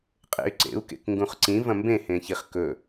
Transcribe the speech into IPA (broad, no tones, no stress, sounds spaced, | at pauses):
qʼ ḛ y̯ ǀ ḛ u̯ k ḛ k ŋ ɡ ũ χ ǀ ĩ v ɐ̃ m b ẽ h ẽ ç i χ k ɵ